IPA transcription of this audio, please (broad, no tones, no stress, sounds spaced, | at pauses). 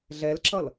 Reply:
ɮ ɛ l ǁ ʌ l